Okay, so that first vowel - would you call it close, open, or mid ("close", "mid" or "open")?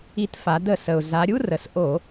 close